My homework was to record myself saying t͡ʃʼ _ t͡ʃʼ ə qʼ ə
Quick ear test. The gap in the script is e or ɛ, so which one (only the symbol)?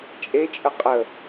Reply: e